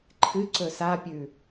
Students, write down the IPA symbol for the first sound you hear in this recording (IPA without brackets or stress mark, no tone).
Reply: ǃʰ